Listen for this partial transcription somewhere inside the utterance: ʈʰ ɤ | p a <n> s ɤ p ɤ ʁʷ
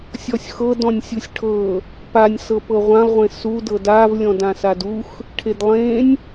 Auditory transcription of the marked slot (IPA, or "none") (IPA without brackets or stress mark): nʲ